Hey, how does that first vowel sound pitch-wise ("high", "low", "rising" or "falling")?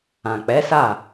low